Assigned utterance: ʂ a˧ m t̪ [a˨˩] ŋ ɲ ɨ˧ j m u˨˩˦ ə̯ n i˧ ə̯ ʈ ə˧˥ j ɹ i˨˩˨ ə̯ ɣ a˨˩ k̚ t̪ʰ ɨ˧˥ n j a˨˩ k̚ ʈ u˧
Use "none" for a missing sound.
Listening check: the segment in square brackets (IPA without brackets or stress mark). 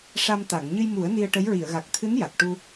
a˨˩˨